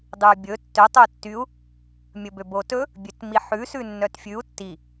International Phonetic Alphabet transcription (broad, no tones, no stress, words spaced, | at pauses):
dˤʉbʲɵ tːø tˤɵu̯tːyu̯ | mʲɵbøbotɵ | bʲøtmiħʉ sʉnːœtfʲʉu̯ tːi